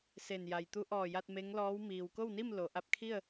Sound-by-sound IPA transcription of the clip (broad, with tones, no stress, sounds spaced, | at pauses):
s e˧˩ n j a˩ j t̪ u˧˥ ʔ ɔː˧˩ j a˧ t̚ m e˧˥ ŋ l ɔː˧˥ w m iː˩ w k o˥˨ w n i˥˨ m l o˩˧ ʔ a˧ p̚ kʰ i˥˨ ə̯